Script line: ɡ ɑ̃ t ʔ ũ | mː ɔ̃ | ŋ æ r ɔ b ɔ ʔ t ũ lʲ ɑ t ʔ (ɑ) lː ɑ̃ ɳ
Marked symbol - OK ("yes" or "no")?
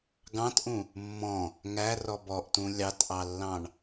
yes